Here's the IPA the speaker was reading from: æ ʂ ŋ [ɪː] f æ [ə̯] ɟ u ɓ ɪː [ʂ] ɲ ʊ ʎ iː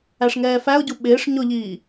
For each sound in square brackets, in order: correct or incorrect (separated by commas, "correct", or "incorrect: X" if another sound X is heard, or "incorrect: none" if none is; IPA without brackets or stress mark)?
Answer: incorrect: ɛː, incorrect: ʊ̯, correct